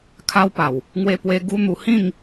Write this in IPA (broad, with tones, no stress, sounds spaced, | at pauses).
kʰ a˦ w p a˨˩ w | ŋ w e˧ p w e˧ ɡ u˦ n̪ u˧ h ĩ˥˧ ŋ